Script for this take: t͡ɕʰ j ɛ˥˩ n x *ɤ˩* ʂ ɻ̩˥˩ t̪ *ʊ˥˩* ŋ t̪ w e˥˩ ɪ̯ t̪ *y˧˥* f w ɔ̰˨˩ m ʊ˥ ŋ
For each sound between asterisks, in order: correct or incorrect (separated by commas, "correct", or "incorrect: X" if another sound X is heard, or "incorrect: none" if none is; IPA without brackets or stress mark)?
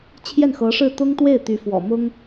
incorrect: ɤ˧˥, incorrect: ʊ˥, correct